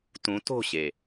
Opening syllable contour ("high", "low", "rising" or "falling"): rising